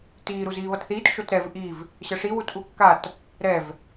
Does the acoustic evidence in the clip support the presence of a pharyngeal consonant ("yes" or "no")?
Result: no